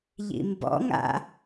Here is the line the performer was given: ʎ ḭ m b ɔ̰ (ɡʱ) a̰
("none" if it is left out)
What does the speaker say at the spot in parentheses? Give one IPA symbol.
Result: ŋ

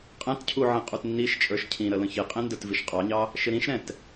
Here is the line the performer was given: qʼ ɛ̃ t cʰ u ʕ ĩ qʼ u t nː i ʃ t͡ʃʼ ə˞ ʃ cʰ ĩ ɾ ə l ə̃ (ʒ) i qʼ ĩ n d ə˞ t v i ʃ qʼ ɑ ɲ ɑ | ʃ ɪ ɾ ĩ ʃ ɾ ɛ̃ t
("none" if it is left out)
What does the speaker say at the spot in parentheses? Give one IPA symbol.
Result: ç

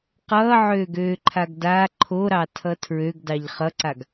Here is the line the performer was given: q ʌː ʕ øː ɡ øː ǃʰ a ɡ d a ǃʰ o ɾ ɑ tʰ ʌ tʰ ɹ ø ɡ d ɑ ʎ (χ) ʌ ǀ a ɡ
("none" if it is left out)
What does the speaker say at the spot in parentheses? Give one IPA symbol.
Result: χ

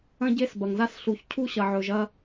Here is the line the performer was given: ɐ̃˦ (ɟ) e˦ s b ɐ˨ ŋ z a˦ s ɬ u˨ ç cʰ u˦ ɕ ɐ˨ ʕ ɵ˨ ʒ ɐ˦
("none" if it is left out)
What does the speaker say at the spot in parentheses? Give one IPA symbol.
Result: ɟ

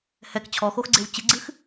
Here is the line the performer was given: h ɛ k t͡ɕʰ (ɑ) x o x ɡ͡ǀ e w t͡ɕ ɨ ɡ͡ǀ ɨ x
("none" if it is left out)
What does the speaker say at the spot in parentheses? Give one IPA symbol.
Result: ɔ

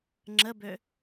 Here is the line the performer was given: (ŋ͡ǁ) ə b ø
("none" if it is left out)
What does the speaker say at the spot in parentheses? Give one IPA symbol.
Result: ŋ͡ǁ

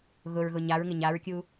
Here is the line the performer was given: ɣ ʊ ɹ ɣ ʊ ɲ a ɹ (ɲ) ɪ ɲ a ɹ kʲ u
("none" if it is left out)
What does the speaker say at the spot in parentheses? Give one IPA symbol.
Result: ŋ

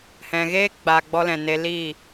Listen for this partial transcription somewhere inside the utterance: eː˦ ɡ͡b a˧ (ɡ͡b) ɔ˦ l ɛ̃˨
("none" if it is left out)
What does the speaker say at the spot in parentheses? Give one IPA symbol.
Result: ɡ͡b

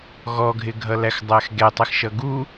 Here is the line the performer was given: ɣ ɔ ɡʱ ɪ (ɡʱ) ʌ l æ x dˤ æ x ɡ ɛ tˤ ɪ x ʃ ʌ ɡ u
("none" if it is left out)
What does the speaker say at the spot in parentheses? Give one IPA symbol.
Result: ɡʱ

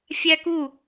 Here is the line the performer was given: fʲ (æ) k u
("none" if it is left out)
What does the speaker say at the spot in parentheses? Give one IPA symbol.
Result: æ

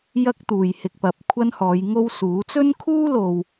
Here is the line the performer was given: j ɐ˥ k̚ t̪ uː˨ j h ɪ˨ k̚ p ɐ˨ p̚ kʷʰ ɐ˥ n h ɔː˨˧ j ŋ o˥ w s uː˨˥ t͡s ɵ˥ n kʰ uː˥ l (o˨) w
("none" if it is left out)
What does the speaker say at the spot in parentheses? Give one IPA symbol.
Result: o˨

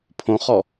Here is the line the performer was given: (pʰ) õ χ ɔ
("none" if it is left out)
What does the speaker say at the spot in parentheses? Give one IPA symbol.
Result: pʰ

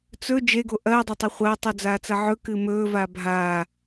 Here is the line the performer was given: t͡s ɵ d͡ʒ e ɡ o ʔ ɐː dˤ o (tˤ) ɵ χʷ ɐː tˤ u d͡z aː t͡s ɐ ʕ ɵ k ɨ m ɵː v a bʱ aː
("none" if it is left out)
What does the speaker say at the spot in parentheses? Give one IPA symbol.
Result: tˤ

